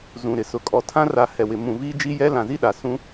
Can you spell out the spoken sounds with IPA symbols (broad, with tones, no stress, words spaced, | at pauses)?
zũ˨ɾɪ˨sʊ˨ kʼɔ˨tʰã˦ra˨ hɛ˨wɪ˨ mũ˨ viː˦d͡ʒi˦jɛ˦ lã˨zi˦ɗa˨sũ˦